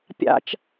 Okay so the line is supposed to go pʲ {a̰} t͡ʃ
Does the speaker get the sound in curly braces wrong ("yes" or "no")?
no